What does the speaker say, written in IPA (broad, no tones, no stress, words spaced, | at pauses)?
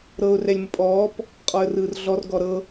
ɾɤʊ̯ rɛlʲməpʼɔːp | qʼɔə̯rɯːrɮɔr ɡɔɾɤ